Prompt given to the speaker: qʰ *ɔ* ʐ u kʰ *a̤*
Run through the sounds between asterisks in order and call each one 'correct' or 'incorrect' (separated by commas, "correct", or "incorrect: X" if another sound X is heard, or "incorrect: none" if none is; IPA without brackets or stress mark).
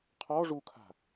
correct, correct